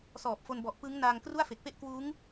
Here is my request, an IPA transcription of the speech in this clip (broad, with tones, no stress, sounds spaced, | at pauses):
s ɔː˨˩ p̚ f o˧ n b ɔ˨˩ ʔ p ɯ˦˥ ŋ n aː˧ ŋ k r u˥˩ a̯ f e˨˩ k̚ p e˥˩ ʔ k w uː˦˥ ŋ